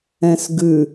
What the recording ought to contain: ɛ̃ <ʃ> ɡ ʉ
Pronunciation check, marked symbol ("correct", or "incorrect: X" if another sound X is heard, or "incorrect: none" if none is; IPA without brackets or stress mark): incorrect: s